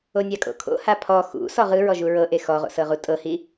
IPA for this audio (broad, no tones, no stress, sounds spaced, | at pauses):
o nʲ a kʼ o̰ kʰ o̰ h a pʰ ɔ x ṵ s ɔ ʁ ɯ ɹ ɔ ʒ u ɹ ɤ ʔ e x ɔ ʁ o̰ s ɤ ʁ u tʼ ɤ h i